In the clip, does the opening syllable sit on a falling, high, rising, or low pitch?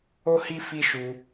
high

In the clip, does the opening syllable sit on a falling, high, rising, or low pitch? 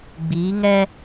rising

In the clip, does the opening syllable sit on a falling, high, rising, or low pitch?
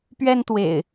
high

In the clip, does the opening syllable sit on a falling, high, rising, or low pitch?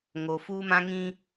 low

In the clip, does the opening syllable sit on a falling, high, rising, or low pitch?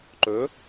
rising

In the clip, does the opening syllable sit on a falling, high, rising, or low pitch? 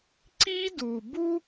high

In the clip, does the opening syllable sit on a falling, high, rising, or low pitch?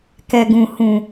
low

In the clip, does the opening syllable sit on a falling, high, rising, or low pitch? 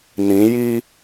rising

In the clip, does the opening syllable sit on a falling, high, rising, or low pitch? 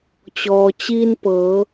low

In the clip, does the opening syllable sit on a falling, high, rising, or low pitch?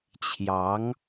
rising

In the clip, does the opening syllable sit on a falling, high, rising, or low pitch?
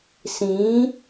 rising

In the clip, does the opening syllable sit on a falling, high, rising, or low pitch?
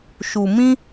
low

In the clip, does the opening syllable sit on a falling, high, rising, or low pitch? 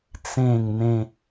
falling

